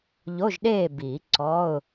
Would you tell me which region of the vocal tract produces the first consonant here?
palate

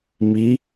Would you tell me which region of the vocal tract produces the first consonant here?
lips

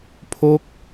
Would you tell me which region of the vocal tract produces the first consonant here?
lips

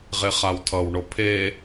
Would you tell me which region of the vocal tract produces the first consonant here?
uvula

